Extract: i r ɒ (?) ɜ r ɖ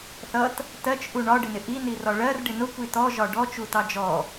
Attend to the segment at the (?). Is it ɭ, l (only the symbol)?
ɭ